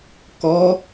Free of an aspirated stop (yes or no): yes